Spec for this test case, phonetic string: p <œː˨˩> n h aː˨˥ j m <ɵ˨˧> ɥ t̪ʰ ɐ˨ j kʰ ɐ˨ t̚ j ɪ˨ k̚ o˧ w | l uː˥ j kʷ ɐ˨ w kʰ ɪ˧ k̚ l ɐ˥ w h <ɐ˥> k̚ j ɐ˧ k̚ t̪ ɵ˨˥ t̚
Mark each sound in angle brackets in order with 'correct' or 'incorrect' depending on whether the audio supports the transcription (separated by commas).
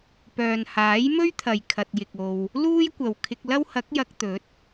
incorrect, incorrect, incorrect